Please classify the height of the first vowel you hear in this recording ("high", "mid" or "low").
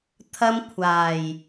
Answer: low